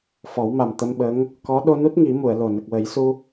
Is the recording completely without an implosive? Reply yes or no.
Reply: no